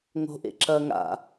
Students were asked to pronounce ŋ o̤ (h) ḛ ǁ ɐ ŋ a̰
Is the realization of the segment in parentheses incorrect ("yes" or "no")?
yes